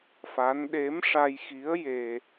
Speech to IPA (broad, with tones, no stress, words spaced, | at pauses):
fa˧˥n ɗe˧˥mʂa˧jxi˧˥ə̯ je˧